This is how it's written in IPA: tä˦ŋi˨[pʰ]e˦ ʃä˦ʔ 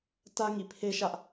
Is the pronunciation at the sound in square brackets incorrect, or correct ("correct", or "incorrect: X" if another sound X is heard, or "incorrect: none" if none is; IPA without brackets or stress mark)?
correct